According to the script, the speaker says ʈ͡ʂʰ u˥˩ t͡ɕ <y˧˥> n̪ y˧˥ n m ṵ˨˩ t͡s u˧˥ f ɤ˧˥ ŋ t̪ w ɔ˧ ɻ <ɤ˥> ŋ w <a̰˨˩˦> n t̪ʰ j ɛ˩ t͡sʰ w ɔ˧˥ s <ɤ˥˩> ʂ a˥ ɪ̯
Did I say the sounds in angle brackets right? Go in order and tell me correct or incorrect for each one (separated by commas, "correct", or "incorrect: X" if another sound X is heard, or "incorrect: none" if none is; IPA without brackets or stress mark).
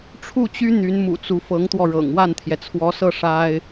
incorrect: y˥, incorrect: ɤ̰˨˩, incorrect: a˥˩, correct